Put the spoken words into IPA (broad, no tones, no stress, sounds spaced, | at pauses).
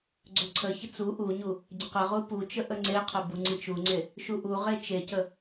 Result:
ɡ͡ǀ ɵ ǀʰ ə ç ə t͡s u ʔ u ɲ u | ɟ ə q ə ʁ u p u t͡ʃ ə ʔ ə ŋ͡ǀ e qʰ ə b u ŋ͡ǀ i t͡ʃ u ŋ͡ǀ e | ʃ u ʔ u ʁ e t͡ʃ e c ə